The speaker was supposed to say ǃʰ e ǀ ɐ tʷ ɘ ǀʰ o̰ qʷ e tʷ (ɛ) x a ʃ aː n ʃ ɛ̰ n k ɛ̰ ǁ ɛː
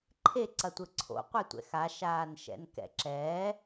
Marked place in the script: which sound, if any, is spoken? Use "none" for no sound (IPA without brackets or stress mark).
ɛ̰